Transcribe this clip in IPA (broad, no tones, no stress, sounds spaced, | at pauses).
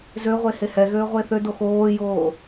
z ø ʁʷ e h e h ɛ ɣ øː ʁʷ e θ ø d o x oː j oː